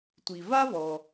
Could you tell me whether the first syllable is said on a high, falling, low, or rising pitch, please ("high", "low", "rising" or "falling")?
low